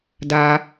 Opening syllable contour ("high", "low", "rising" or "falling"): high